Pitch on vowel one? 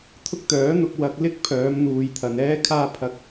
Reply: high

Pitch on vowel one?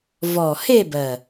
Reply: low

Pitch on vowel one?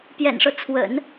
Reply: low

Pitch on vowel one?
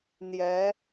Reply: rising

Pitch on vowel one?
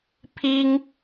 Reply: high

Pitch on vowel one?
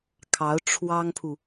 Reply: rising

